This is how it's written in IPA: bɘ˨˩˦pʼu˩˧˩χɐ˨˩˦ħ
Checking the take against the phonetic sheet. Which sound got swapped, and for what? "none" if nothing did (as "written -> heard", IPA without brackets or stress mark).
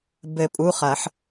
none